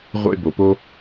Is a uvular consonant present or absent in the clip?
present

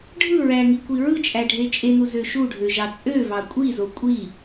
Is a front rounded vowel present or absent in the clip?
present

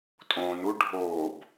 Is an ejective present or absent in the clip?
present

